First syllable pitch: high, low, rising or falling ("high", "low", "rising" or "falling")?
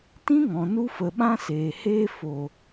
high